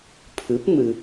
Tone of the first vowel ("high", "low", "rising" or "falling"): rising